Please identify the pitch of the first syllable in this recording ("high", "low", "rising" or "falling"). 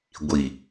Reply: low